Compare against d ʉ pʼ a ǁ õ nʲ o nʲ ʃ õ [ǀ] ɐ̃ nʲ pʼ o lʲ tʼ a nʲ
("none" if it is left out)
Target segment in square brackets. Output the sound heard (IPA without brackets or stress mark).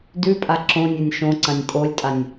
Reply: ǀ